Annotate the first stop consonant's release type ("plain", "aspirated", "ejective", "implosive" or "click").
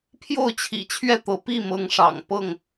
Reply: aspirated